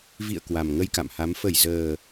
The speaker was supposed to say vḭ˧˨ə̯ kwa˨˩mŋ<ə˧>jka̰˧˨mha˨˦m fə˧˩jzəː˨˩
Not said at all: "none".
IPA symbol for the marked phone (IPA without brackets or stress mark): ə˧